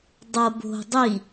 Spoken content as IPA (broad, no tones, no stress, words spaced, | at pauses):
dˤɤ bo̤ dˤi